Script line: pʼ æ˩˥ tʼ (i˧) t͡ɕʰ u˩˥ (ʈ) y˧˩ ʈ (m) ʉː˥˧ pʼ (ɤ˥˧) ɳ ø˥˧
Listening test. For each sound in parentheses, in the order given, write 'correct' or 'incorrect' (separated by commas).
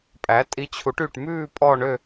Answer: correct, correct, correct, incorrect